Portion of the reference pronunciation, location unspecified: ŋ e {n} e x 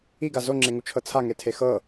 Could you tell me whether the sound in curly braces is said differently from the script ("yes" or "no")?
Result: yes